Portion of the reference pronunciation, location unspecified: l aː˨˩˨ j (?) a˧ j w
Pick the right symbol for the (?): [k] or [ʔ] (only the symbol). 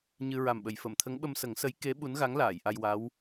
ʔ